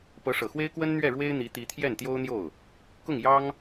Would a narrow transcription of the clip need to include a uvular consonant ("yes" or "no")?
no